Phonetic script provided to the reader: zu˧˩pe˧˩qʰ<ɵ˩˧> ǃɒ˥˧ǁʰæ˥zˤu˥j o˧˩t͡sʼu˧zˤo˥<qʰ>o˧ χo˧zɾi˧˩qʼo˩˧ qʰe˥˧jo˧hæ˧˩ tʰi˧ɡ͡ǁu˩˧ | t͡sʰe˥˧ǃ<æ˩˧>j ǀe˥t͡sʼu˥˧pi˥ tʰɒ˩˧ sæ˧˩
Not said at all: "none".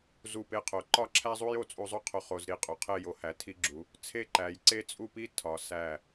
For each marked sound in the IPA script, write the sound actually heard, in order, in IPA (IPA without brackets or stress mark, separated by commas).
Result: o˩˧, qʰ, æ˩˧